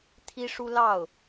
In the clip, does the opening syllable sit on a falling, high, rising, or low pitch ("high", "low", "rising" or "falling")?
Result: high